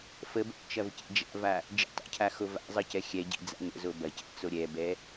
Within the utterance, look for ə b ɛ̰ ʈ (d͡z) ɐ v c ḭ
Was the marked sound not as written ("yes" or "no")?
yes